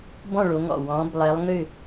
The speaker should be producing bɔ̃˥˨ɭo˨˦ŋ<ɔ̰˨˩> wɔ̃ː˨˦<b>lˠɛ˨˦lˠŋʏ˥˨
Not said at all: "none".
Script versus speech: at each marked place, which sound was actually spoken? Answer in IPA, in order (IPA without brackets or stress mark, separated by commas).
ɔ̰˨˩, b